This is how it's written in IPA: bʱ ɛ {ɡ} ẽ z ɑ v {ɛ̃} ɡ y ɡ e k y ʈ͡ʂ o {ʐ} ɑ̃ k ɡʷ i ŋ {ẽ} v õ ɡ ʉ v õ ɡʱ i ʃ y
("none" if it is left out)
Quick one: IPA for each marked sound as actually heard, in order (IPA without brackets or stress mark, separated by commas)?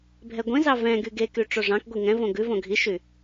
ɡʷ, ɛ̃, ʐ, ɛ̃